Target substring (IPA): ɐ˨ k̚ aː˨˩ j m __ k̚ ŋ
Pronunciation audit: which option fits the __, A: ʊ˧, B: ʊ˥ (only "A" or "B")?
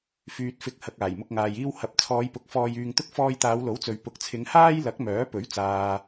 A